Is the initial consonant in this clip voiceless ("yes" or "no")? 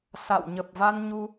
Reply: yes